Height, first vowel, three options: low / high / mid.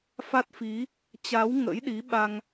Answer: low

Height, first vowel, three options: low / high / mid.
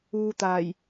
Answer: high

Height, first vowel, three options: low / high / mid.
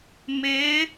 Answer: high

